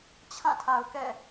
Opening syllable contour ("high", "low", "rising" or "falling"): falling